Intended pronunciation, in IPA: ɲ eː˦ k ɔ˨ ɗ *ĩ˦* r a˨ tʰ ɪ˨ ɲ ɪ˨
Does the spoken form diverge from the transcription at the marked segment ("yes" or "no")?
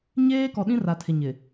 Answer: no